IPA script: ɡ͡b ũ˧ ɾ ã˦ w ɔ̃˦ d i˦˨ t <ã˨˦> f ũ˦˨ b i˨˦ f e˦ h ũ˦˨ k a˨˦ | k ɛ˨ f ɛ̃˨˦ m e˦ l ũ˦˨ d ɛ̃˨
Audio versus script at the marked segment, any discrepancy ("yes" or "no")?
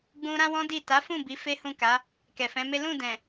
yes